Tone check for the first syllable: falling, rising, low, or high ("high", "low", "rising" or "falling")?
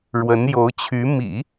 rising